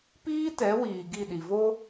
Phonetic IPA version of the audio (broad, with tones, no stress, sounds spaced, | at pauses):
p iː˦ t ɛ˨˦ w iː˨ ɡ i˦˨ ɗ i˨ v o˦